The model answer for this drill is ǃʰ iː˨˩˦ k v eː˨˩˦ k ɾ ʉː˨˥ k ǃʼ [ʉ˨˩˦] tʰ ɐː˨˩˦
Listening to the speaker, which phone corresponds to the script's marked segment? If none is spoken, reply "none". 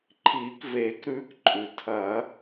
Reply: ʉ˩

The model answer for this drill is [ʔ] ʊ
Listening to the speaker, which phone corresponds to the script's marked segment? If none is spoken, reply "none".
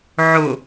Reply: ʕ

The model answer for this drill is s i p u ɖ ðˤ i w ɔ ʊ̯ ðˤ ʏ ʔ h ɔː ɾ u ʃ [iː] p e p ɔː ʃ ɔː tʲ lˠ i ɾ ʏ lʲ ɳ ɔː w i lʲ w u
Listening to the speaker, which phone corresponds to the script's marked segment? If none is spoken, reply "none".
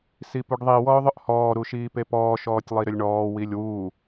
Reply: iː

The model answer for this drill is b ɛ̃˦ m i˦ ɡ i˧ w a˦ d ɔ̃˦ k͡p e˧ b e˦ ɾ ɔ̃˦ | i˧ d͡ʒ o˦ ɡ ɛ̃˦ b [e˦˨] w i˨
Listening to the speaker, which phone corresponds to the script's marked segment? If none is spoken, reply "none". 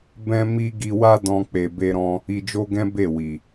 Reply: e˦˨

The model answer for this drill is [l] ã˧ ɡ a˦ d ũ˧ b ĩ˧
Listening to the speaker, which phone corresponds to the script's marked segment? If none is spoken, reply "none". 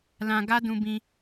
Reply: l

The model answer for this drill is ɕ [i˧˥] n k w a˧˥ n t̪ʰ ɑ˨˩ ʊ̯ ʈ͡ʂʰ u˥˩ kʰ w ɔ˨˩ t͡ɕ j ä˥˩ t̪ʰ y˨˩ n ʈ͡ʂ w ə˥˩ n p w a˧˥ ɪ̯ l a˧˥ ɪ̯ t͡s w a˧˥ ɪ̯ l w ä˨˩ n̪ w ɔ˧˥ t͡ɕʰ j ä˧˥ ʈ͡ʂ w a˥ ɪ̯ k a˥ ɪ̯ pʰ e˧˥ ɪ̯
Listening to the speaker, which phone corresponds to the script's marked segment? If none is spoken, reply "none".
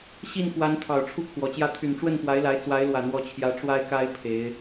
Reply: i˥˩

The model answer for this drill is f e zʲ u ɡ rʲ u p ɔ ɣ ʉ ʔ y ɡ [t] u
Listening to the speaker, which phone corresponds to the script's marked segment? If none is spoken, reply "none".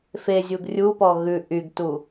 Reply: t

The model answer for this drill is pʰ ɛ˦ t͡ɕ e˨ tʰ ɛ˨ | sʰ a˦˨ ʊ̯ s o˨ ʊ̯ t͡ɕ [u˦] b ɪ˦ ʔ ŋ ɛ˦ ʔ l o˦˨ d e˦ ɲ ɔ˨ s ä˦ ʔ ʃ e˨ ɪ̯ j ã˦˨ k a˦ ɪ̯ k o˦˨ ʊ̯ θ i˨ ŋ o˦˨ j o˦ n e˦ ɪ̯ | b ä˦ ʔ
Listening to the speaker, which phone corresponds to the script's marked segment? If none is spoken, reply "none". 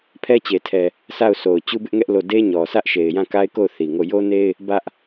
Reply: u˦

